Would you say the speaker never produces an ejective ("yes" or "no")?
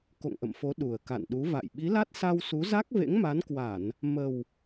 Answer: yes